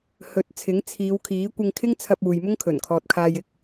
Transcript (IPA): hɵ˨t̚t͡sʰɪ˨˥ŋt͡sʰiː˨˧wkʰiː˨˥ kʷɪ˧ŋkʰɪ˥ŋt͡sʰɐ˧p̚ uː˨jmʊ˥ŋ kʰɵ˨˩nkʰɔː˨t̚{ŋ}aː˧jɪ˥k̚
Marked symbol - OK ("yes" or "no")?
no